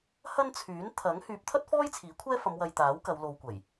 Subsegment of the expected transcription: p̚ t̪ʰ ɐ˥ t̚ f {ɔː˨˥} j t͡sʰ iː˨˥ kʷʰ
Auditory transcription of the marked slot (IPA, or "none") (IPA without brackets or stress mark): ɔː˥